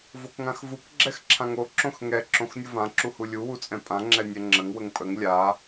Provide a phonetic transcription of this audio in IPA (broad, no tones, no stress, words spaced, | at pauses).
vokŋãxvuk ɡ͡ǁɛxǁʰãŋo ǁõxŋɛ ǁõxnʲʊvã ǁuhulʲu wut͡sʼɛ̃pʼã ŋ͡ǁɛnʲɛŋ͡ǁəŋ wəŋpʼəŋ lʲa